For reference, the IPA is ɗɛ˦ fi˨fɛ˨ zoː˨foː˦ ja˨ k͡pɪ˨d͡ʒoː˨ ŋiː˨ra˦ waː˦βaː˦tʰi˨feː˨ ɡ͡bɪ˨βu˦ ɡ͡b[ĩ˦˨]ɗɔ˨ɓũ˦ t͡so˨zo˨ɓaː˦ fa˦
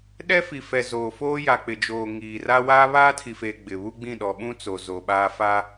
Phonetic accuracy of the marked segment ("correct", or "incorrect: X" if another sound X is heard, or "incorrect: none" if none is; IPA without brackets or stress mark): correct